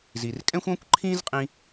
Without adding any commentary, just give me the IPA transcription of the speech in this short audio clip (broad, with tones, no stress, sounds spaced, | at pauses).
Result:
z i˩ r kʼ ɛ̃˥ xʷ ɔ̃˥ kʷ ǃʰ ĩ˥ z qʼ ĩ˥